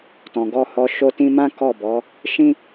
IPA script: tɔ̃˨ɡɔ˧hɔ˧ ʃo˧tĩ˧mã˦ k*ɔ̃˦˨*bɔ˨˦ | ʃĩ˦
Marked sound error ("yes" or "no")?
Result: yes